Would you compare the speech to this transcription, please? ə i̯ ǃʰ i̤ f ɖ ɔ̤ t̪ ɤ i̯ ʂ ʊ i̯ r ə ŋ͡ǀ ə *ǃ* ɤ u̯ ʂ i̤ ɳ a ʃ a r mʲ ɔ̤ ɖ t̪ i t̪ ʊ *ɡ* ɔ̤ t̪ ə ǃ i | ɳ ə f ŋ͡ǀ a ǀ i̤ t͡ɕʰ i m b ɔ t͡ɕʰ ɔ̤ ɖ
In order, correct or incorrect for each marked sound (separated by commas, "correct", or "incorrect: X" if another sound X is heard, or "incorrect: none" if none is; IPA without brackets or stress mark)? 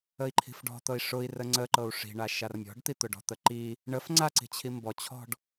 correct, incorrect: ɖ